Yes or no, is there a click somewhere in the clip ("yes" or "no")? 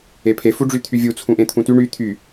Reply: no